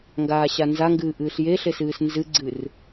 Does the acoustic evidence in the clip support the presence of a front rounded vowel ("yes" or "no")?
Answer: no